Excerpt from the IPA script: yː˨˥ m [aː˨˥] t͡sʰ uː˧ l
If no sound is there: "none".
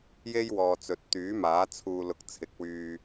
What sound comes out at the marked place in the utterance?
aː˨˥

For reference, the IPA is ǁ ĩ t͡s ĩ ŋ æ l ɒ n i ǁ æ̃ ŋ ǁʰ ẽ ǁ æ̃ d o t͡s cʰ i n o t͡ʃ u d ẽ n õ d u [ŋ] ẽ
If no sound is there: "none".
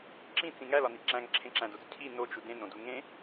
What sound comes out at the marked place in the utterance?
ŋ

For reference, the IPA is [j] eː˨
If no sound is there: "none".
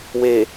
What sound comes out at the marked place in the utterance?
w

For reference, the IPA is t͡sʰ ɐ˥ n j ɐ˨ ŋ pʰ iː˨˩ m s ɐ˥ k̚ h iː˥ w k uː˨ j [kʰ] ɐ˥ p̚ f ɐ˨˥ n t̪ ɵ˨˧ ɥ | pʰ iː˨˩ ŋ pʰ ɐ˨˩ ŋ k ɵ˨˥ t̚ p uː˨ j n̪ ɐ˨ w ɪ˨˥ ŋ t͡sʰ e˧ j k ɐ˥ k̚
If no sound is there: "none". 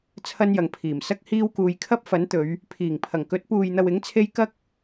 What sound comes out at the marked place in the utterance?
kʰ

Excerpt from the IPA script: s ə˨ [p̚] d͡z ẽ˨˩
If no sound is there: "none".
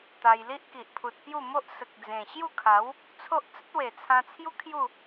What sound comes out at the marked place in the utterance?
k̚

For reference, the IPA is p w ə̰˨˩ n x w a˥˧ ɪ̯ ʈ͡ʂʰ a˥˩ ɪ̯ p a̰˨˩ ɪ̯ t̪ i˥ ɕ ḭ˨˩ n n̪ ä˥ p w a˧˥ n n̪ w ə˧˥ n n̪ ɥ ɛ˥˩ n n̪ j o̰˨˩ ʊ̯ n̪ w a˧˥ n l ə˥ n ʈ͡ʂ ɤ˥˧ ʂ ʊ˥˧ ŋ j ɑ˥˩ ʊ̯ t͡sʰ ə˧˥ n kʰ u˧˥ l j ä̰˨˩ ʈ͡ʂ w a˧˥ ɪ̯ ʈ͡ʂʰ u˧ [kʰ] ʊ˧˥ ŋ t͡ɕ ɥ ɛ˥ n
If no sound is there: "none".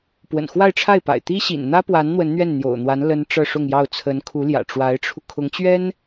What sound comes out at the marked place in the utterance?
kʰ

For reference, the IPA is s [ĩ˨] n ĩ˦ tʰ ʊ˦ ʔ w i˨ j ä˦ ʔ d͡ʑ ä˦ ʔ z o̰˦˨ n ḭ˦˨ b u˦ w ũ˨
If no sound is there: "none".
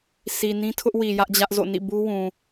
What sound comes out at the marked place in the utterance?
i˨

